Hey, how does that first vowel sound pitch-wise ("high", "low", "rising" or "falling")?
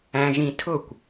high